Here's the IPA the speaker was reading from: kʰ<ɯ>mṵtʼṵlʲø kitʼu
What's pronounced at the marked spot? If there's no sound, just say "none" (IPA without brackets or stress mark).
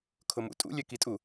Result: ʊ